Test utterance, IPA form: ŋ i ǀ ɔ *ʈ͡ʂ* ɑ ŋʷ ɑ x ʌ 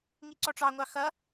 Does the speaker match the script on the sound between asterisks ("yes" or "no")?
yes